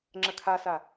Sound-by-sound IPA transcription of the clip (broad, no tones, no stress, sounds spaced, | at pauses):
ŋ͡ǁ ə kʰ a s a